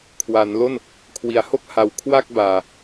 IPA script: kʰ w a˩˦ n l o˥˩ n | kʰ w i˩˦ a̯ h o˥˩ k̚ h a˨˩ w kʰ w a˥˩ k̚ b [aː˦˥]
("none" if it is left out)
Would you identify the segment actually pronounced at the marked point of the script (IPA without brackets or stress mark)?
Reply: aː˨˩